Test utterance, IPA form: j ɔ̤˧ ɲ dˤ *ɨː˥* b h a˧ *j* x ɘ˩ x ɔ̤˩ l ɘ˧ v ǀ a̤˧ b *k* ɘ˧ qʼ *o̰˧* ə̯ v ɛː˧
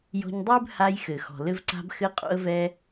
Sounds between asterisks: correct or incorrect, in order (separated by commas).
correct, correct, incorrect, correct